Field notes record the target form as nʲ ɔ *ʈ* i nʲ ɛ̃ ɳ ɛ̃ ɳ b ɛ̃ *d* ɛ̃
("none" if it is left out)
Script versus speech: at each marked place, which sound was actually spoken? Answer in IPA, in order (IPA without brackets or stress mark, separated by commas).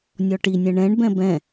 ʈ, b